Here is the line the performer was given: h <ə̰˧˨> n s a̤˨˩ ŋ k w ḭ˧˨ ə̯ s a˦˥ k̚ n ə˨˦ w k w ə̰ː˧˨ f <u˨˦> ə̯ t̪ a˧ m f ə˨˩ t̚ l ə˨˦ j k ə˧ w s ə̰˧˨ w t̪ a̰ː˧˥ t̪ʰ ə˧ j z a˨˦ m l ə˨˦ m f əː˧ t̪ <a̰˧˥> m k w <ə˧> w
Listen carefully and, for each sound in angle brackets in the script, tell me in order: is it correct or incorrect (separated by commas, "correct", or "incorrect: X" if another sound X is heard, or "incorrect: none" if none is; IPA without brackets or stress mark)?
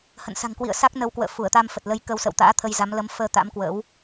correct, incorrect: u˧˩, correct, incorrect: ə̰˧˥